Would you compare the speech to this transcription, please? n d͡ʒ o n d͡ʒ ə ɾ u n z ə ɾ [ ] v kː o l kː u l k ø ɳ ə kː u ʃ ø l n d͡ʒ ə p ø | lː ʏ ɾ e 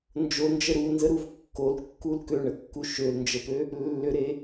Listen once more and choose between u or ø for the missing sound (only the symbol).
u